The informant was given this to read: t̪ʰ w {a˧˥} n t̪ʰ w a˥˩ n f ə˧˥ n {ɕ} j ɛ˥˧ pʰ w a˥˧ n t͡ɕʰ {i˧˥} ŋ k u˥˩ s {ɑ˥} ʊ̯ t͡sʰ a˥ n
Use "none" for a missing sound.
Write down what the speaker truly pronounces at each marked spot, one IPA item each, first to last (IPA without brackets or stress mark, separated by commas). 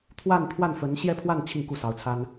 a˥˧, ɕ, i˥˧, ɑ˧˥